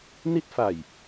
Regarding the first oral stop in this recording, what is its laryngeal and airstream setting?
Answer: plain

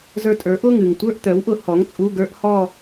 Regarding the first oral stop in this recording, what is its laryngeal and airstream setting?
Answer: ejective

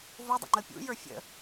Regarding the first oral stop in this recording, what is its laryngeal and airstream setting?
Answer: plain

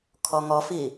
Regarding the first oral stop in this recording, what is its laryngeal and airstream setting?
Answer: aspirated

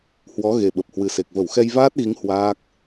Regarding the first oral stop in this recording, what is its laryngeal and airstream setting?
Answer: implosive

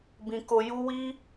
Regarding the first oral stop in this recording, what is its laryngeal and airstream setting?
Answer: plain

